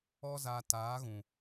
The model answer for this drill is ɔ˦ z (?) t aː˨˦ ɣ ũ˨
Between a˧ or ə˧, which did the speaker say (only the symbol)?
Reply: a˧